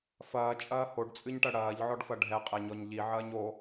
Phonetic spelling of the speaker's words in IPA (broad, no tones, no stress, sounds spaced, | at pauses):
f ɐː t͡ʃʼ ɐː h o ɖ t͡sʼ ɨ ɲ ʈ ɐ ɽ ɐː ʎ ʕ ɔ ɖ f ɐ ɖʱ ɛ qʼ ɛ ɲ ɔ ɲ ʎ i ʕ ɐː ɲ o